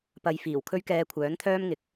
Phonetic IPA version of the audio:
p ɐ˧ j f iː˨˩ w kʰ ɵ˥ ɥ k ɛː˧ kʷʰ œː˨˥ n t̪ʰ œː˥ m ŋ ɪ˨˥ k̚

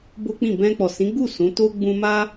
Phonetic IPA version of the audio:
b o˦ k͡p ĩ˦˨ b ɛ̃˧ k͡p ɔ˨ s ĩ˨˦ ɡ͡b u˦˨ s ũ˨˦ t o˦ ɡ͡b ũ˦ m a˦

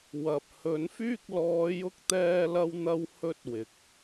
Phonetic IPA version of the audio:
w ɐ˨ p̚ h ɵ˨˥ n f yː˥ k̚ l ɔː˨˧ j ʊ˧ k̚ t̪ ɛː˧ l ɐ˧ w n̪ ɐ˥ w h ɵ˥ t̚ w ɪ˨˥ k̚

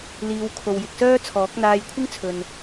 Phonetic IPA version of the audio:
l iː˨˧ w kʰ o˨ w j ɪ˨ k̚ s œː˥ t͡sʰ ɔː˨˥ k̚ n̪ aː˧ j kʷʰ ɪ˥ ŋ t͡sʰ ɵ˨ n

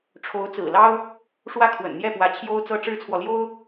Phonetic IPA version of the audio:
ʈ͡ʂʰ o˧˥ ʊ̯ t͡s ɹ̩˨˩ l ɑ˥ ʊ̯ | ʂ w ä˥ kʰ w ə̰˨˩ n n̪ j ɛ˥˩ p w ä˧˥ t͡ɕʰ j o˥ ʊ̯ t͡s ɤ˥ ʈ͡ʂ ɻ̩˥ t͡sʰ w ɔ˨ l j o˥ ʊ̯

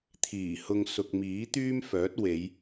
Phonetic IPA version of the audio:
t̪ʰ iː˨˩ h ʊ˧ ŋ s ʊ˨ k̚ m iː˨˥ t̪ yː˥ m f œː˨˥ t̚ w e˨˧ j

